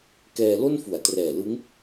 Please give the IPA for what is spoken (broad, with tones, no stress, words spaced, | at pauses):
kɛː˧lo˥˩n fu˩˦a̯trɛː˨˩lɯ˦˥ŋ